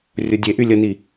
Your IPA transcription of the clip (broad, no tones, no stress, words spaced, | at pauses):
rʲʊdʲeʔy lʲəni